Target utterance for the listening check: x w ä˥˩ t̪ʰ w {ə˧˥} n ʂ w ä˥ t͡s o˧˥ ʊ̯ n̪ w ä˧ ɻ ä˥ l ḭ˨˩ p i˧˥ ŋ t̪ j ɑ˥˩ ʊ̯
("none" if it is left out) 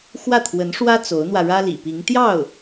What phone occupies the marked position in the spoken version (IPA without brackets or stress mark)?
ə˧˥